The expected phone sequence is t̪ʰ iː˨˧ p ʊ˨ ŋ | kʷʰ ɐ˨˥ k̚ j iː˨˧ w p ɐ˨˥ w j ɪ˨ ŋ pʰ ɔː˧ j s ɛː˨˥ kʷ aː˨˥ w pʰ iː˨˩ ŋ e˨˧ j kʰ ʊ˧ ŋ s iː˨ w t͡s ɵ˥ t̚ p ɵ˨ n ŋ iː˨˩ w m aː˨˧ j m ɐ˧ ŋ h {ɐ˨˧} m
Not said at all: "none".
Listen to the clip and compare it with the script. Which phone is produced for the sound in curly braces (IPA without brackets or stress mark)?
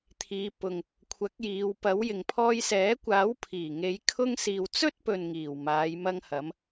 ɐ˨˧